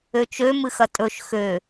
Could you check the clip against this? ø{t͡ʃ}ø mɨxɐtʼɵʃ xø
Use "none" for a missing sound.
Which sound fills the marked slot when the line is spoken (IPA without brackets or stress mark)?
t͡ʃ